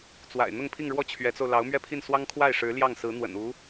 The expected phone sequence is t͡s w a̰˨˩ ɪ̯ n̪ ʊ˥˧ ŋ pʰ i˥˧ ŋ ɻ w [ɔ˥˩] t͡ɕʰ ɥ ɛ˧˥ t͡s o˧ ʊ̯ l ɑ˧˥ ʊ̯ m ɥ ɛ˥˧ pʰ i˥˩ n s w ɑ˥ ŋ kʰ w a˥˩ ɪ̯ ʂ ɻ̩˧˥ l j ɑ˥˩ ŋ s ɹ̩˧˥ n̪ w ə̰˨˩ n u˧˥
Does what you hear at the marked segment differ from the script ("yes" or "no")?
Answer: no